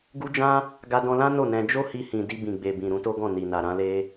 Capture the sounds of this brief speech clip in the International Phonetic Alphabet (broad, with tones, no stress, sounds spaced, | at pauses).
ɡ u˦ d͡ʒ ã˦ | ɡ a˧ d ɔ̃˧ l ã˦ n o˦˨ n ɛ̃˧ d͡ʒ o˦ h i˧ h ĩ˨ d i˧ b ĩ˨ ɡ͡b e˨ b ĩ˨ ɾ ũ˨˦ t o˦ ɡ ɔ̃˦˨ n i˨ n a˨ ɾ ã˧ l e˧